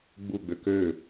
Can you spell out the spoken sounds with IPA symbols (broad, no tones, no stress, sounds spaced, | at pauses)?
ɡ͡b u ɡ͡b ø k ø